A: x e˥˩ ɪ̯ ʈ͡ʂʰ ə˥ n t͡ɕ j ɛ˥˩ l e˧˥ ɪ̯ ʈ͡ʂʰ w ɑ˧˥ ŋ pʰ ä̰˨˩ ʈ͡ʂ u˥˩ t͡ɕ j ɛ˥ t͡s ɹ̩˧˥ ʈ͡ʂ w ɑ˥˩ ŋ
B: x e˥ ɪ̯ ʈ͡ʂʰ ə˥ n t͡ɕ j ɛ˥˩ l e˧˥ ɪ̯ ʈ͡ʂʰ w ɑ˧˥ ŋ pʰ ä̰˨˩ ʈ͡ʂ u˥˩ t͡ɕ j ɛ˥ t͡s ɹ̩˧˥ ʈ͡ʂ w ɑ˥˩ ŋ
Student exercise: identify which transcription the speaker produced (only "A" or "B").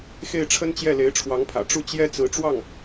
A